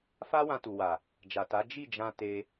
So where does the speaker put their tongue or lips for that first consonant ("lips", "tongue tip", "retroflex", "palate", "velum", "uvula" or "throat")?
lips